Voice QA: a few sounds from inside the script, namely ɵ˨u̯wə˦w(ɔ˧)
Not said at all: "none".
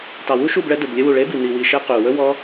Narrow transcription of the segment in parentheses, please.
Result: ɔ˦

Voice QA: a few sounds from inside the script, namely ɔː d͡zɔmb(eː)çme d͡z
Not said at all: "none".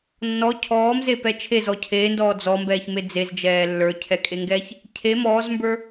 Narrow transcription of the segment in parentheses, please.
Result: ɛː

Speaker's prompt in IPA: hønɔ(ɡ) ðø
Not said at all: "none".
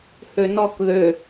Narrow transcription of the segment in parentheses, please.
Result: k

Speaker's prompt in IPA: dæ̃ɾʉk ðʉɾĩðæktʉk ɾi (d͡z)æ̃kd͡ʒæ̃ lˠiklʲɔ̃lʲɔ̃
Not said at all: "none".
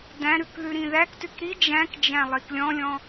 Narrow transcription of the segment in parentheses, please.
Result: d͡ʒ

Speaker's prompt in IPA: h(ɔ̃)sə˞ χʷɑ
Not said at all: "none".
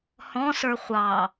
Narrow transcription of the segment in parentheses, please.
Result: ɔ̃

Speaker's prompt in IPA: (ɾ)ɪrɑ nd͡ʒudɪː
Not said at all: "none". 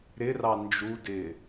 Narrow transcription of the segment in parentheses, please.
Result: ɾ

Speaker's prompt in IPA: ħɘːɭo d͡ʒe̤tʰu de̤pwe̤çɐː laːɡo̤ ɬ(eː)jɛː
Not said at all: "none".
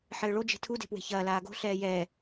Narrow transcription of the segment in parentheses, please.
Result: ɛː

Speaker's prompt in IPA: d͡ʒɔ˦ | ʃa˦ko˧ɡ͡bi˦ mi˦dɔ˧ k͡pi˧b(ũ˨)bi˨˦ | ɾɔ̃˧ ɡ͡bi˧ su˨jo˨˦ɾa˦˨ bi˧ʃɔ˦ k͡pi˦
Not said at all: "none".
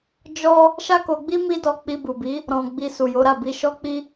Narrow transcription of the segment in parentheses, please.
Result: u˨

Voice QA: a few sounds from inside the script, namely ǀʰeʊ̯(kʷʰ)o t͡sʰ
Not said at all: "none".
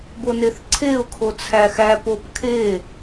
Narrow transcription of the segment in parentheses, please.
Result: kʰ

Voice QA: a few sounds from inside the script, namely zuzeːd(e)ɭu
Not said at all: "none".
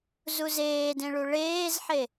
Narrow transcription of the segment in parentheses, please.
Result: ẽ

